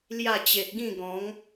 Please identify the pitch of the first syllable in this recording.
falling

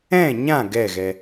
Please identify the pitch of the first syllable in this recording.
falling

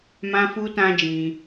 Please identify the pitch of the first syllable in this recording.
high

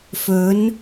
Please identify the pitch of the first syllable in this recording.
rising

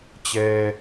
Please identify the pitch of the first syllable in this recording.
low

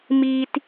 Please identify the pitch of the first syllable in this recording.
high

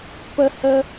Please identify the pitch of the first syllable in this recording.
high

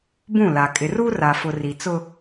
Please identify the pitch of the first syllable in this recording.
falling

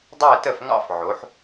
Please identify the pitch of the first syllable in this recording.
falling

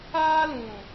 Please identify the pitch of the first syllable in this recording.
high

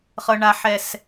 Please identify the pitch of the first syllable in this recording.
low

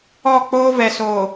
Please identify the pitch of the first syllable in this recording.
falling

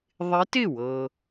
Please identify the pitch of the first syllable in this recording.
rising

